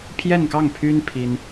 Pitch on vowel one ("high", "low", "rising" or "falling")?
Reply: falling